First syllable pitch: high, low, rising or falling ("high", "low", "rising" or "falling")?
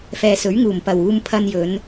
low